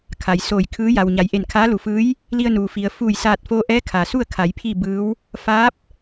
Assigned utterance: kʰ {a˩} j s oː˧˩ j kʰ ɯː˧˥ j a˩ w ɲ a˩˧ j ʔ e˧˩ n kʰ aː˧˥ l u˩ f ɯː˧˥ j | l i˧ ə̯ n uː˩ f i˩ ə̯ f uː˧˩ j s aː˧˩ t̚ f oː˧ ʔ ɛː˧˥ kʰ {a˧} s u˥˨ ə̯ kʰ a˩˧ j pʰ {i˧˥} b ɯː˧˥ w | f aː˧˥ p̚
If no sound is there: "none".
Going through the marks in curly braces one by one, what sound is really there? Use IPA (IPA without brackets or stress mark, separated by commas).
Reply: a˩, a˩, i˥˨